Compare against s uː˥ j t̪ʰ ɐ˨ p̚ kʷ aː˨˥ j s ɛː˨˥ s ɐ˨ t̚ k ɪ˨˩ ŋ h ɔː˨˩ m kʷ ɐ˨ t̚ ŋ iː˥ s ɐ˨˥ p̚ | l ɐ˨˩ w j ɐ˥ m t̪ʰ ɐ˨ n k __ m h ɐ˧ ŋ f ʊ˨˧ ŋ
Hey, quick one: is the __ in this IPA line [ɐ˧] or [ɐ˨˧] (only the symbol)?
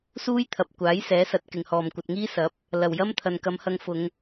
ɐ˨˧